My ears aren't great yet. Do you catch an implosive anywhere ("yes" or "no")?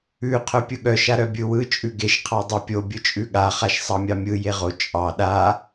yes